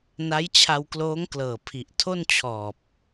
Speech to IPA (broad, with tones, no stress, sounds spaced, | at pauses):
n a˦˥ j t͡ɕʰ a˧ w k l oː˦˥ ŋ k l ɤː˨˩ pʰ i˨˩ ʔ tʰ o˥˩ n t͡ɕʰ ɔː˨˩ p̚